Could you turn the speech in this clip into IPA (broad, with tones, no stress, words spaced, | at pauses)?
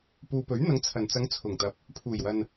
puː˨pɵ˨˥ɥn̪ɐ˨˧ŋ t͡sʰɐ˨˩nt͡sɐ˨˧ŋ t͡sʰʊ˨˩ŋt̪ɐ˨˥p̚ | pʰuː˨˩jwɐ˨n